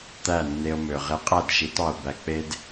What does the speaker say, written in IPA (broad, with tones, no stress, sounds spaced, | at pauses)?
t̪ æ˦˨ nː e˧ o̯ m ø˨ ʁ e˧ qʼ æ˦˨ d ʃ i˨˦ t ɑ˧ o̯ b æ˧ k͡p e˦ d